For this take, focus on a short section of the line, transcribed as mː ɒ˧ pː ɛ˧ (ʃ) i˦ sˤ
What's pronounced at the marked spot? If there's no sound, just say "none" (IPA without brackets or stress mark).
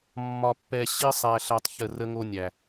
ɕ